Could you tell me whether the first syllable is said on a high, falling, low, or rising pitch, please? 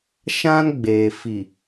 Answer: high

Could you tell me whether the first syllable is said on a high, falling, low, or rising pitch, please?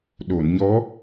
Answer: low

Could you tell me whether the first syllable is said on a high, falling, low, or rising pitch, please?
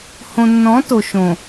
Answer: low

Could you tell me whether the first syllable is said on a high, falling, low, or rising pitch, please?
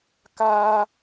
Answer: high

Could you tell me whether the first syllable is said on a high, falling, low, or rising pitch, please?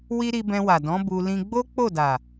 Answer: high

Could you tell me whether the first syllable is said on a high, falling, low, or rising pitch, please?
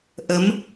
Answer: rising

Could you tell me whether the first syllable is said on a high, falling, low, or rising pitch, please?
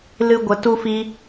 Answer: high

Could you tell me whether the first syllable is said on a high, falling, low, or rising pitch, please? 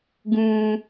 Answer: low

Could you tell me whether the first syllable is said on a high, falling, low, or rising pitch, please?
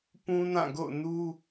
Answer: high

